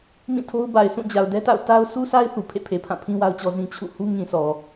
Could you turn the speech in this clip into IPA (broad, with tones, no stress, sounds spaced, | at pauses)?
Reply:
m ĩ˦˨ tʰ o˦ ʊ̯ b a˨ ɪ̯ s ũ˦˨ d͡ʑ a˨ ʊ̯ d ɛ˦ t a̰˦˨ ʊ̯ t a˦ ʊ̯ s u˦ sʰ a˦ ɪ̯ θ u˨ pʰ ḛ˦˨ pʰ e˨ pʰ ã˦˨ pʰ ĩ˦ w a˦ ʊ̯ t͡ɕ ɔ˦ z ĩ˦ t͡ɕʰ ṵ˦˨ h u˦ ŋ ĩ˨ sʰ ɔ˨